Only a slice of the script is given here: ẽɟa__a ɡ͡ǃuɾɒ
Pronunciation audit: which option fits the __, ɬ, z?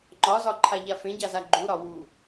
z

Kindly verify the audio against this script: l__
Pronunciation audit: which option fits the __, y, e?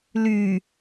y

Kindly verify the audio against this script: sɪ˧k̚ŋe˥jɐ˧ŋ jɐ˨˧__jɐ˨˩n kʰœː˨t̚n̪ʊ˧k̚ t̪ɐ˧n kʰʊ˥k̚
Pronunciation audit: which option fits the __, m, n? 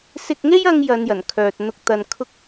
n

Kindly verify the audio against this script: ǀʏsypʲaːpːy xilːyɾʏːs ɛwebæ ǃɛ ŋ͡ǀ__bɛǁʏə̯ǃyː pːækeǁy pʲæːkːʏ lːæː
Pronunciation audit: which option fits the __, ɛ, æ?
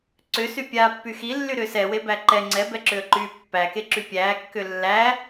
ɛ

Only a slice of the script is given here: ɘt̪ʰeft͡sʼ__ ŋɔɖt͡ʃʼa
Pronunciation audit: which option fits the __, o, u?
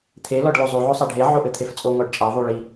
o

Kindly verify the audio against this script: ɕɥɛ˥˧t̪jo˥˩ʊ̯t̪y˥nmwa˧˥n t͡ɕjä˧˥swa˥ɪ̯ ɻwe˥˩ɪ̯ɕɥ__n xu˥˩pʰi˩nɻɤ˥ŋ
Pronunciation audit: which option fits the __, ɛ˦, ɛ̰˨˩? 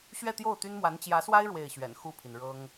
ɛ̰˨˩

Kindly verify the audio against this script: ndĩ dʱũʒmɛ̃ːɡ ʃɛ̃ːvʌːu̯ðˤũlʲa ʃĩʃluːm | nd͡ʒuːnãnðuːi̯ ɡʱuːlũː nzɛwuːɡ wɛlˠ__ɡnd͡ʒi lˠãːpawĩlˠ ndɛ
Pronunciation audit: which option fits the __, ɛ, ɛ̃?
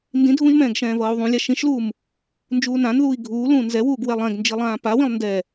ɛ̃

